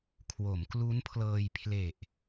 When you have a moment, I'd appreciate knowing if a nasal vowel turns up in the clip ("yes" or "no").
no